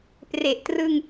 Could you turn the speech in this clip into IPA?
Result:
p r e˨˩ ʔ t r ɯ˧ ŋ

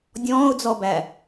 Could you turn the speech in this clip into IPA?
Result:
dʲ ɔ̃ː ʊ̯ d͡z ɔ b æ

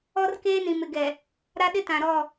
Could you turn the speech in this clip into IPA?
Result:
ɔ˦ r k eː˦ n ĩ˨ m ɪ˨ ɡ ɛ˨ | ɾ a˦ ɗ ɪ˦ t ã˨ ɾ ɔ˦˨

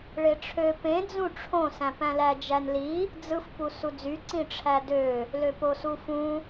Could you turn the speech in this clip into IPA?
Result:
ɭ e ʈ͡ʂʰ ø p ẽ d͡z ũ ʈ͡ʂʰ õ s æ̃ p æ̃ l æ d͡ʒ æ n l i | d͡z ɯ f p u s u d͡z y ǀ ĩ ʈ͡ʂʰ æ d ø | l ø p o s u f ũ

